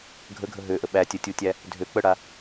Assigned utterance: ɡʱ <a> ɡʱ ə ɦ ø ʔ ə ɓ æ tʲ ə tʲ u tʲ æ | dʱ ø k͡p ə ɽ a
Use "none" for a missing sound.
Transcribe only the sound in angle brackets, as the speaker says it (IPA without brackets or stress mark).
ə